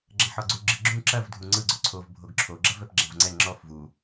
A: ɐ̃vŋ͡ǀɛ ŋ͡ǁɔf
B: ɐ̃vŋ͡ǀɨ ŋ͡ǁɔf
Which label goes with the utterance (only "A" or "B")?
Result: A